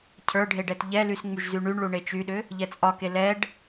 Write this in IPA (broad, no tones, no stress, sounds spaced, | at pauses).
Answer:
cʰ ə˞ ɖʱ e ɖ ɛ t ʎ ɛ l y s ŋ͡m y ʒ z y ɳ y ɳ ɭ u ɳ e t͡ʃ y ɗ ʏ | ʎ ɛ t͡sʼ ɒ k e l ɛ ɖ